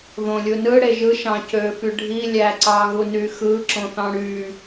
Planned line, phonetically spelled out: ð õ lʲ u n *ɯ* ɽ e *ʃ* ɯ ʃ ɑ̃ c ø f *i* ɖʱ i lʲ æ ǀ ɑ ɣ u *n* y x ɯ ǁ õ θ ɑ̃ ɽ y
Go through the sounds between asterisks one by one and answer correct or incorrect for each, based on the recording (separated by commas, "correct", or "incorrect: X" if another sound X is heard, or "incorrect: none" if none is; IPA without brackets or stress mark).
correct, incorrect: ʒ, incorrect: y, correct